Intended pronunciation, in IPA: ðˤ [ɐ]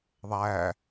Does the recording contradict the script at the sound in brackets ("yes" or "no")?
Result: yes